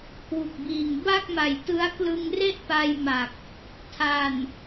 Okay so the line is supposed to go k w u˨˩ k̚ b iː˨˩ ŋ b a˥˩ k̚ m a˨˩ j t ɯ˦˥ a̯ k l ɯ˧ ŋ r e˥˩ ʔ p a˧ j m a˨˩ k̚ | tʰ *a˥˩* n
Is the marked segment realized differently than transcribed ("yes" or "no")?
yes